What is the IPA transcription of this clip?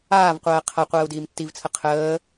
aː v qʷ ɜː qʰ ɐ qʷ ɜː u̯ d iː m tː i v t͡sʰ ə qʰ əː

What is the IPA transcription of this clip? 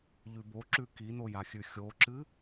ʎ ʉ b o ǁ ʉ k i n o j a xʲ ʉ xʲ o ǁ ɨ

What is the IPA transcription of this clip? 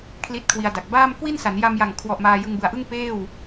kʰ l i˦˥ t̚ kʰ w i˧ a̯ d a˨˩ k̚ b aː˥˩ m k w i˥˩ n s a˩˦ n j a˧ m j a˨˩ ŋ kʰ w ɔ˨˩ ʔ m aː˧ j ɯ˧ ŋ b ɯ˨˩ a̯ ʔ ɯ˥˩ ŋ p eː˥˩ w

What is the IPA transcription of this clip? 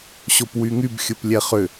ɕ o p w y ŋ y b xʲ ʊ p lʲ ɛ χ ʏ

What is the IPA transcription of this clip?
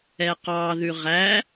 ɛ q ɑ ð ʉ ʁ æ

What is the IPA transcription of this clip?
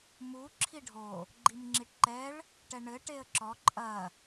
m u ǁʰ i ɖʱ o | ɡ͡ǃ i m ŋ͡ǁ i ʈ ǃ ɛ ɭ | ʈ ɛ ɳ ɘ ʈ e ə̯ ǁ ɔ ǃʼ ɐ

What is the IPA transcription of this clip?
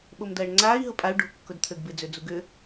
ɓ o m d ɐː ɳ ŋ͡ǀ aː i̯ ɦ ʊ pʼ a u̯ ɖ o̤ kː ʊ d t̪ʰ ø ɡ b ɪ d͡z ø d͡z u ɡ ʏ

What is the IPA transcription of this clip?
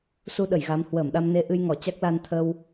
s u˧ ɗ ə˧˩ j ɣ a˨˦ m h w əː˧˩ m ɗ a˧ m n e˧ ʔ ɨ˧ j ŋ ɔ˧˩ t͡ɕ a˦˥ k̚ l a˧ n t̪ʰ ə˧ w

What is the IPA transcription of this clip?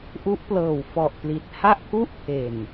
ʔ u˦˥ ʔ p l ɤː˨˩ w f ɔ˨˩ ʔ p l i˨˩ t̚ h a˥˩ ʔ k u˥˩ ʔ pʰ e˨˩ n

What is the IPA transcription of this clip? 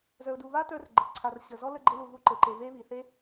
z ə˞˨ ʊ̯ d u˨ β a˦ t ə˞˦ r ɡ͡ǃ ɘ˨ ǀʰ a˨ r ɕ ə˨ z ɔ˦ l ə˧ ɡ͡ǃ ɘ˧ l u˨ ɣ u˦ ǃ ɘ˨ ǃ e˧ β e˦ β i˨ θ e˦

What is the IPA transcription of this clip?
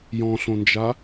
j ɔ̃ ɬ õ n d͡ʒ a

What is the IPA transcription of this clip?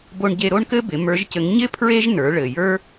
b o˧ ɳ ɟ e˧ ɾ o˥ ɳ k ɘ˥ b ɪ˩˧ m ə˞˧˥ ʒ c ɘ˧˥ ŋ ɲ ɪ˥ pʰ ɹ e˥ ʒ n ə˞˩˧ ɭ ɘ˩ j ə˞˥

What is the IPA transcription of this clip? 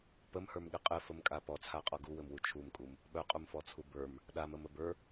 p ə m h ə˞ m ɠ ɪ qʼ ɘ f ə m kʼ a p ɔ t͡sʰ a qʼ ɔ ɡ u w ɘ m w u t͡ʃʰ u m kʼ u m | ɓ œ qʼ u m f ɔ t͡sʰ u b ə˞ m | ɗ a m ə m ə b ə˞

